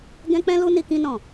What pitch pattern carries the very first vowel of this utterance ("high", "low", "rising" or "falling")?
high